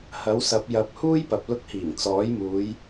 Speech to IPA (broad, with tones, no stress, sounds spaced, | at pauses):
h ɐ˨˥ w s ɐ˨˥ p̚ j ɐ˨˥ p̚ h uː˥ j p ɐ˨ p̚ l ʊ˧ k̚ h iː˨˩ ŋ t͡s ɔː˨˥ j m uː˨˧ j